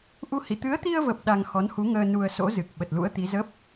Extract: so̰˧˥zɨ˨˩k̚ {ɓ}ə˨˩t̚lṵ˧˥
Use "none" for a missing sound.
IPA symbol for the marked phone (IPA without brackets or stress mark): ɓ